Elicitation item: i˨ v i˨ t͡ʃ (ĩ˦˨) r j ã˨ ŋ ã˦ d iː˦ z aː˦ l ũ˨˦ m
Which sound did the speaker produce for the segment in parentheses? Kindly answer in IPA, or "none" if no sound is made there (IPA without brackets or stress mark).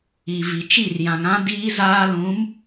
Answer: i˦˨